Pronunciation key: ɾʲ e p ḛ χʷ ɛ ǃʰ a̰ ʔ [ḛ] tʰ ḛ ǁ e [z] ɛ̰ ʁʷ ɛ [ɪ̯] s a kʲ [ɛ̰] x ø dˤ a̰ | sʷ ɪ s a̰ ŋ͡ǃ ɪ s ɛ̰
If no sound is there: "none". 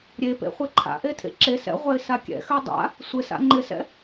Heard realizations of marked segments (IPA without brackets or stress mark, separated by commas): e, s, ɪ̯, ɛ̰